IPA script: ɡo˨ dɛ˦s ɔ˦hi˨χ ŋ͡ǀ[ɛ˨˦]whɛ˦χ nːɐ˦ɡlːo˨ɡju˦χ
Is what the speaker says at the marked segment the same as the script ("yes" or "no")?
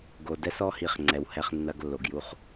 yes